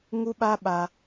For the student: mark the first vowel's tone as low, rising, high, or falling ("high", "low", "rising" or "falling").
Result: high